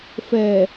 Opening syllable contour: low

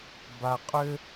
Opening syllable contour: low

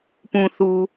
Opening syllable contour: low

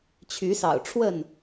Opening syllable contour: rising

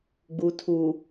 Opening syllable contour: low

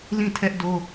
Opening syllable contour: falling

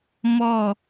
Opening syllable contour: falling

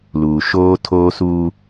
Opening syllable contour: low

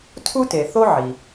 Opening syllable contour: high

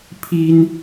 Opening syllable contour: high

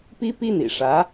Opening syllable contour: high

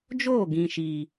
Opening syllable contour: falling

